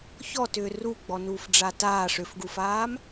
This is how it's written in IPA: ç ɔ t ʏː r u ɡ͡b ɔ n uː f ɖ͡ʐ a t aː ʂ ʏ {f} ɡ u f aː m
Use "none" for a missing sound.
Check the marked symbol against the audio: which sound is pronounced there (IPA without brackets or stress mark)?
f